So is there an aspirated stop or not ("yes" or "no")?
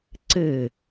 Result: no